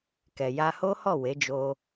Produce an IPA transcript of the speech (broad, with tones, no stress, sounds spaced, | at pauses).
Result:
k ɛ˨ j a˧ h o˦ h ɔ˦˨ w e˨˦ d͡ʒ o˧